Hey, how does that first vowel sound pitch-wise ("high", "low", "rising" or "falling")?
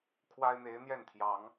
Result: high